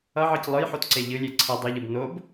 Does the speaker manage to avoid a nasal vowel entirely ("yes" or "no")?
yes